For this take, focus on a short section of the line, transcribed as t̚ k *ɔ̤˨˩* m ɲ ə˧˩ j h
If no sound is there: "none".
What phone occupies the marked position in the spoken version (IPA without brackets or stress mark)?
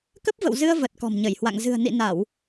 ɔ̤˨˩